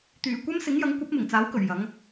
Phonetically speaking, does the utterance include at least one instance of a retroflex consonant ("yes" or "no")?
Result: no